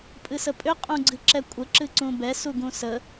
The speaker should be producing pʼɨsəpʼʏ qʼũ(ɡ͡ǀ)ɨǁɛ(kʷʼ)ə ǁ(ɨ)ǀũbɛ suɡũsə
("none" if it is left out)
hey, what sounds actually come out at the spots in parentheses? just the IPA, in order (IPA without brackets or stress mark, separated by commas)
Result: ɡ͡ǀ, kʷʼ, ɨ